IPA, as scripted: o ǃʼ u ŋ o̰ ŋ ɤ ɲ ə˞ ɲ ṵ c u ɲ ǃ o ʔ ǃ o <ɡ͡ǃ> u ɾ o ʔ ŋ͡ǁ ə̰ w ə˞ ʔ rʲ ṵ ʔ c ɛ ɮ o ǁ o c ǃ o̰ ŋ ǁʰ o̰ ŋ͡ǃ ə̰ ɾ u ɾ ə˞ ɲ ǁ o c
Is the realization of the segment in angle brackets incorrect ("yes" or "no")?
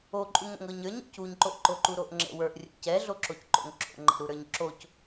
yes